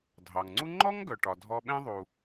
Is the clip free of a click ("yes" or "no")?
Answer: no